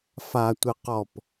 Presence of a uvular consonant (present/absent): present